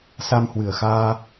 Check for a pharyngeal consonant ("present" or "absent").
absent